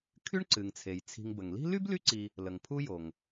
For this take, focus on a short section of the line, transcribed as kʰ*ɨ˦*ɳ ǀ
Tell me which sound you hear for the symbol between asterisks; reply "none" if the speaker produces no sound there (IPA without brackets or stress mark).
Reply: y˦